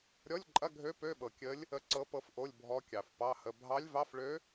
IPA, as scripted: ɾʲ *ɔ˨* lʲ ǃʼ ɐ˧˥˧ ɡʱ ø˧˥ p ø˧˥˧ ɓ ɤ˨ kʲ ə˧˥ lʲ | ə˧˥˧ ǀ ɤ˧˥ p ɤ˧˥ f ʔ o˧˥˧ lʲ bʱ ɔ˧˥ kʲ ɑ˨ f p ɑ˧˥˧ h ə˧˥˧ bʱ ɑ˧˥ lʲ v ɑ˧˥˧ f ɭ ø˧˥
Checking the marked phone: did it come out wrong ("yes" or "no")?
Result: yes